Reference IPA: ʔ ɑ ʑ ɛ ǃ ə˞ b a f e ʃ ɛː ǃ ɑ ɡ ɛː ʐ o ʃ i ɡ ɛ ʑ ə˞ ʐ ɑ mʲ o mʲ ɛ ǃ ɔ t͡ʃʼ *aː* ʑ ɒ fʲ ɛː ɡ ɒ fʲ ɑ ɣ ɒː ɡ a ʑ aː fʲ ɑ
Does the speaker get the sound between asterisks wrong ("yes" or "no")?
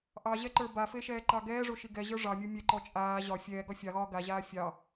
no